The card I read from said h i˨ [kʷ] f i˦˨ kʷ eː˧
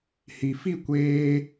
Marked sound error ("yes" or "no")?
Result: yes